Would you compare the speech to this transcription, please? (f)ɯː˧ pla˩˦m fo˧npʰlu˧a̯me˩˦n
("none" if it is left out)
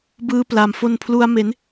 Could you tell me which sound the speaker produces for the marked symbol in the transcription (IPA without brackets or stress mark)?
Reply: b